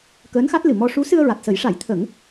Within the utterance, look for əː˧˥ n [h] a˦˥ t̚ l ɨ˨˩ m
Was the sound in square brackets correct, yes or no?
no